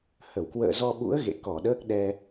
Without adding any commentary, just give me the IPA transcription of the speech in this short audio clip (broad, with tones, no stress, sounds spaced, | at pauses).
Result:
h ə˧˩ w k w ə̰ː˧˨ z ɔ˧ ɓ ṵ˧˥ ə̯ ɣ ḛ˧˨ k ɔ˧˩ ɗ əː˦˥ k̚ ɗ ɛ˧